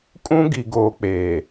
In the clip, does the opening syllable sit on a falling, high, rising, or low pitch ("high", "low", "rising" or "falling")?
high